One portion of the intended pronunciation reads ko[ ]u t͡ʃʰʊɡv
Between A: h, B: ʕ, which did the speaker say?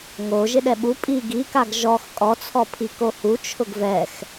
A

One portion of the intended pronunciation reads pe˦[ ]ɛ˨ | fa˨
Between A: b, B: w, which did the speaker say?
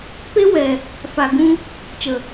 B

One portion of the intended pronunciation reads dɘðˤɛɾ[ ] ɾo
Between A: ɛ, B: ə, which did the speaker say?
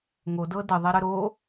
B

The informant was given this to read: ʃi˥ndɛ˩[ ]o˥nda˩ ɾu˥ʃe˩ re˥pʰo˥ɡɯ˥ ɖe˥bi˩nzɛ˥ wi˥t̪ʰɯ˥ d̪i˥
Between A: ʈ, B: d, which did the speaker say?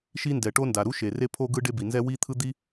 A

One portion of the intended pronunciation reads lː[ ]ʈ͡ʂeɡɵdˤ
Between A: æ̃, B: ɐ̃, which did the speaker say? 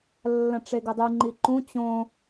B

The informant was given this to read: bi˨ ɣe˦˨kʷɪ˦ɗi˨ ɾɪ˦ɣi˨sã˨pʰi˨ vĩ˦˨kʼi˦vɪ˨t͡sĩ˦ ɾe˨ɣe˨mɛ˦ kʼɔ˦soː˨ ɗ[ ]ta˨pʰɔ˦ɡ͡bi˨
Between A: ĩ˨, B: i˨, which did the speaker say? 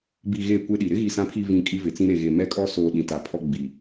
A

